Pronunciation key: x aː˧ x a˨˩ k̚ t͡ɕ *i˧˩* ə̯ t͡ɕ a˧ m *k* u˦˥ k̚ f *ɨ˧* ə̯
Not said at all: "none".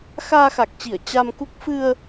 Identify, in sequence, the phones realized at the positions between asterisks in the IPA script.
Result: i˧˩, k, ɨ˧

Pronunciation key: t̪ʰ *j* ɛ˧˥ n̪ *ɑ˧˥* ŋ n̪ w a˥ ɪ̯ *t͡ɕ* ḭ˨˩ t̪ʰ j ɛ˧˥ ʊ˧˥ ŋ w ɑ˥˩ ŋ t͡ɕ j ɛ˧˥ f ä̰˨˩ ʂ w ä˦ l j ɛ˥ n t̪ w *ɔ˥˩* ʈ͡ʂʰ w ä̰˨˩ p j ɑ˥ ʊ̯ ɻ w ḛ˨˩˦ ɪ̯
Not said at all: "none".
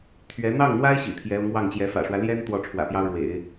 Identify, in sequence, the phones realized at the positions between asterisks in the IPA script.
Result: ɥ, ɑ˥˩, ɕ, ɔ˥˩

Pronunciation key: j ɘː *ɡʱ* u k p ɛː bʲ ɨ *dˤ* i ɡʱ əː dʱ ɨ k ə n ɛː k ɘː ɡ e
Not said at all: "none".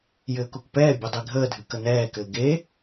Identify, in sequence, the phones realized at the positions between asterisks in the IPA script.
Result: k, dˤ

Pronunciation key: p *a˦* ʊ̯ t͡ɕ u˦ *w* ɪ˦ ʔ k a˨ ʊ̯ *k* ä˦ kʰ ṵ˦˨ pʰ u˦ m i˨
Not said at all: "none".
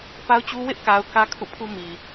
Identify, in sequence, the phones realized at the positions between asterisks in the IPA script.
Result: a˦, w, k

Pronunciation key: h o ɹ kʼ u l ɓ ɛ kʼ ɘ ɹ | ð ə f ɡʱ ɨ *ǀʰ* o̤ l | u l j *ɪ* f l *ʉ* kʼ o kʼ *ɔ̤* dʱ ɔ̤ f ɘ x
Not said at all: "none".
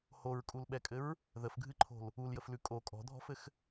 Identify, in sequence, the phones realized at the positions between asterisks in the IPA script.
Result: ǃʰ, ə, ʉ, ɔ̤

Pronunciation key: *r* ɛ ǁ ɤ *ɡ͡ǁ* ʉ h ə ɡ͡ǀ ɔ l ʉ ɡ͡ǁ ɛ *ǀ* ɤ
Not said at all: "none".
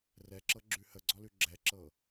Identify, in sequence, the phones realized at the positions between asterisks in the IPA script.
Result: r, ɡ͡ǁ, ǁ

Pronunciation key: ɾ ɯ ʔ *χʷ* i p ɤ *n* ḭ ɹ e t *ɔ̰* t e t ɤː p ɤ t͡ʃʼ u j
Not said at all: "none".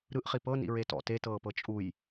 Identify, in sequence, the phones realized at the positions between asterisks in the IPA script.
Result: χ, n, ɔ̰

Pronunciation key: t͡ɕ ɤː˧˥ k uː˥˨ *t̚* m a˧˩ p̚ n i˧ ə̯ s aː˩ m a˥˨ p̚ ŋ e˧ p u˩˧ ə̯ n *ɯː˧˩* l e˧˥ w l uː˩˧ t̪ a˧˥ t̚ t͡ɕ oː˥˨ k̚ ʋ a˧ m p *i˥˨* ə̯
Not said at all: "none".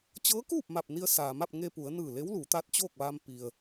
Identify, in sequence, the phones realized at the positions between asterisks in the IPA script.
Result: p̚, ɯː˧˩, i˩

